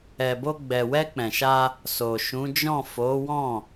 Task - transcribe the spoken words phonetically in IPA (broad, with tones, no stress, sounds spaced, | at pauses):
ɛ˨ b o˧ ɡ͡b ɛ˨ w ɛ˧ k͡p ɛ̃˨ ʃ a˧ | s o˨ ʃ ũ˨˦ d͡ʒ ɔ̃˦˨ f o˨˦ w ɔ̃˦˨